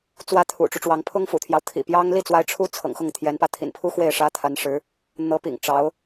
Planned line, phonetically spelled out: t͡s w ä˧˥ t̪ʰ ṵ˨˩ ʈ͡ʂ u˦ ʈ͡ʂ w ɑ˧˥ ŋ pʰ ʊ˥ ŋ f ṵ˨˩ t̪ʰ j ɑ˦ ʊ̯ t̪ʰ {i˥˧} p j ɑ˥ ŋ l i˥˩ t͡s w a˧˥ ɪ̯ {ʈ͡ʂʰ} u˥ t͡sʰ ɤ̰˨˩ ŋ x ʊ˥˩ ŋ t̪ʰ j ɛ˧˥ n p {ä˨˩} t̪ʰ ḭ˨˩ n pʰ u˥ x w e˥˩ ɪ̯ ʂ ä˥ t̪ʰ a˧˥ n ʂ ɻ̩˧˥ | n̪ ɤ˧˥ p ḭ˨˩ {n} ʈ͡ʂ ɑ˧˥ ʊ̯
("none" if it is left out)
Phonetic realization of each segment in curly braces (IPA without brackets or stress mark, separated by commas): ḭ˨˩, ʈ͡ʂʰ, ä˧˥, ŋ